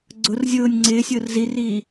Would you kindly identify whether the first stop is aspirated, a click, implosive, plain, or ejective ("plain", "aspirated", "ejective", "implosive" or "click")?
click